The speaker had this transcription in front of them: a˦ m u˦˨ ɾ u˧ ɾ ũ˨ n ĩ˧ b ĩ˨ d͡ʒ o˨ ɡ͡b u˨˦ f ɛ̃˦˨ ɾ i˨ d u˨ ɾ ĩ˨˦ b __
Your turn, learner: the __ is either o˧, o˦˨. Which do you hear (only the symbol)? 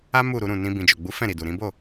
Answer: o˦˨